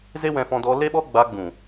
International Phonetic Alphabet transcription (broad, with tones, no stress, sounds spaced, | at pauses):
z e˦ w ɛ̃˧ f ɔ̃˧ d ɔ˧ l e˦ ɓ ɔ˦ ɡ͡b a˧ ɡ͡b ũ˨